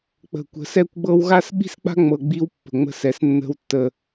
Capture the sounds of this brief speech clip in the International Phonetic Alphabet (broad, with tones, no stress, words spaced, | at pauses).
k͡pə̤˨kʷə̤˨˦sɛ˦kʷ ɡ͡bɤ˦w ɣa˦sɓi̤˦sk͡pa̤˦ŋ͡mɤ˨ ɡ͡bi˦w pːə̤˨ŋ͡mə̤˦˨sɛ˨s nːə̤˦wtːə˦